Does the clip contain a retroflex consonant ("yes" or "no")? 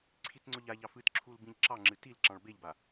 yes